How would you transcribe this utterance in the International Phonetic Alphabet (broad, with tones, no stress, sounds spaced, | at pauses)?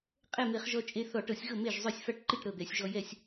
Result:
qʼ ɛ˥˩ m e˧˩˧ χ ʒ ɔ˧ t͡ʃʼ e˧ θ ɔ˧˩˧ ʈ ɤ˧˩˧ sʲ ɣ ɤ˥˩ m e˥˩ ʒ zˤ œ˥˩ sʲ f a˥˩ ʈ ǃ i˥˩ ʈ ɾ ɤ˥˩ d̪ ɛ˧˩˧ sʲ ʒ ɔ˧ j ɛ˥˩ sʲ